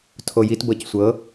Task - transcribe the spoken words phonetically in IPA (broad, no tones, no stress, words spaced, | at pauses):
tʰojitbɤc sʷɤ